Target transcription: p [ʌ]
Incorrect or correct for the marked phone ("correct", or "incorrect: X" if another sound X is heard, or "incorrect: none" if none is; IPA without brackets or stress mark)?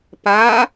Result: incorrect: a